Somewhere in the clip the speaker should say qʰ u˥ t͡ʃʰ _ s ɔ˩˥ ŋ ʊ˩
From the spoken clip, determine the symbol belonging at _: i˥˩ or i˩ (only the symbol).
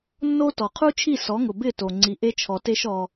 i˥˩